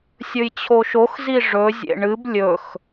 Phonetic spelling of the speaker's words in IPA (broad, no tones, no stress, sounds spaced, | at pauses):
sʲ ɵ j t͡ɕʰ o ʃ o x z i ʐ ɵ zʲ ḛ ɳ ɨ b lʲ ɵ x